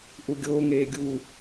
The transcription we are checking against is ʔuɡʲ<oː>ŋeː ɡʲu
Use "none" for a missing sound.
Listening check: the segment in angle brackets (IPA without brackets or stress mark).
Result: oː